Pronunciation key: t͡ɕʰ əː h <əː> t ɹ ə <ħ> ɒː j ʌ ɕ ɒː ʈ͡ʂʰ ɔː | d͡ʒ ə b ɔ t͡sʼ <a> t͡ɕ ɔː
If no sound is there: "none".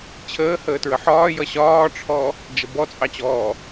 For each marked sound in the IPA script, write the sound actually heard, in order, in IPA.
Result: əː, ħ, ɑ

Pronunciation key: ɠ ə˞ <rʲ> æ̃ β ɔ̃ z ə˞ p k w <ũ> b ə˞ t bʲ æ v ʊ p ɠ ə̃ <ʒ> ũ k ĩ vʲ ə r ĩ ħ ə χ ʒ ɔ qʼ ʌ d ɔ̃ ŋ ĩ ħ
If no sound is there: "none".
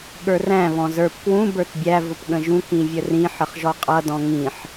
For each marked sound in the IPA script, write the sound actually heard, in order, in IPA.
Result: r, ũ, ʒ

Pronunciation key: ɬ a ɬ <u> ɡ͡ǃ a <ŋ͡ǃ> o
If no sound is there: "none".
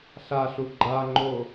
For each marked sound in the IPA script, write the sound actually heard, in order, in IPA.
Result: u, ŋ͡ǃ

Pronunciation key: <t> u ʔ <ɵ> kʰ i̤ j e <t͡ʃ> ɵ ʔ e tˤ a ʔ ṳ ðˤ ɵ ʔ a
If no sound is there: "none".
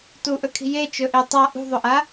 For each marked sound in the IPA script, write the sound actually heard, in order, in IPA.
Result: t, ɵ, t͡ʃ

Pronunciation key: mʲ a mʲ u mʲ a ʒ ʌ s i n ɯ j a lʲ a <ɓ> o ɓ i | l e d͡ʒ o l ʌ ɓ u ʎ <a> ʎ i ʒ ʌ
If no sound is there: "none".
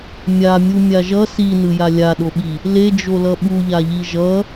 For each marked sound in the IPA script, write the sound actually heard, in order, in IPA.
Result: ɗ, a

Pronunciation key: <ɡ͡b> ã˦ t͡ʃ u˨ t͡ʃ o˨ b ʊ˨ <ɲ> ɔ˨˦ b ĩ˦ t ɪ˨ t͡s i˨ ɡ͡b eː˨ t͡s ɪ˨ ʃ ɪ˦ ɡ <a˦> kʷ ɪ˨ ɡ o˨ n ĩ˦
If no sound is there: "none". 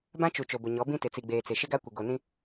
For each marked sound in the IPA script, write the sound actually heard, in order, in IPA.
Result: b, ɲ, a˦

